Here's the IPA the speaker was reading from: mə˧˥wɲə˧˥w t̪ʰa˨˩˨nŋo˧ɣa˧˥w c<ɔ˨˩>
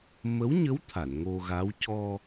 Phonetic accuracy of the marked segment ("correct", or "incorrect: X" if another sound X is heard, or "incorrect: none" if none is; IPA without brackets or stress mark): incorrect: ɔ˧